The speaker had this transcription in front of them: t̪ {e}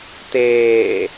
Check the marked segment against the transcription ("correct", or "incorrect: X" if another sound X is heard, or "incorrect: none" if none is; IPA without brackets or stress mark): incorrect: eː